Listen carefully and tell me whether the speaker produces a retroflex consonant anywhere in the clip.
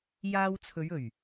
no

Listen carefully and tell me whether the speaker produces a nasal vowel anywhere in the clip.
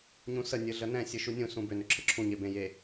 yes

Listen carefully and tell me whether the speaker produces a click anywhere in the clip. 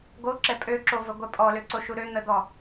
yes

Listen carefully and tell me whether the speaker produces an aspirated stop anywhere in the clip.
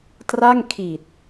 yes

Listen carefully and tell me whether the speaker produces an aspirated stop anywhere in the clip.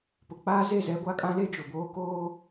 no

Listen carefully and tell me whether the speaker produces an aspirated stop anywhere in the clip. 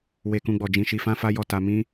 no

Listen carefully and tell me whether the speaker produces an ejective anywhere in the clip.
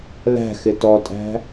yes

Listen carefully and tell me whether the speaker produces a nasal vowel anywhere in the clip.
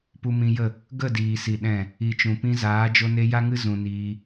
yes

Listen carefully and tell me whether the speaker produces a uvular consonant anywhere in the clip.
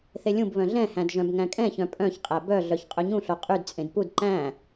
yes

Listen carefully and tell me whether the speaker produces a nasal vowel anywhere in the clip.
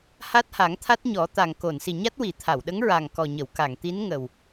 no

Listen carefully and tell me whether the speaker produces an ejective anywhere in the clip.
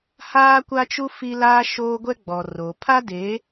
no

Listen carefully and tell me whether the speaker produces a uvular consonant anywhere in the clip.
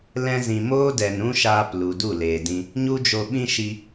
no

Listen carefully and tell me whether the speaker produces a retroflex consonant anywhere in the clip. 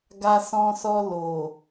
no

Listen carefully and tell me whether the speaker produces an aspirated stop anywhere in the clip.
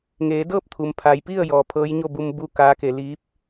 yes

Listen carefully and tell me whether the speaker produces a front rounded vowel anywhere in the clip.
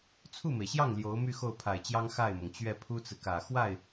yes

